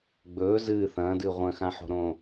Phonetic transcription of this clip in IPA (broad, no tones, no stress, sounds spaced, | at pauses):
ɡ͡b ɵː z ɨː θ ɐ̃ː d ɨː ʁʷ ɐ̃ x ã ħ o̤ ɾ õː